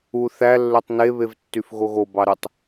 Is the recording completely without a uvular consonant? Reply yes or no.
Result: yes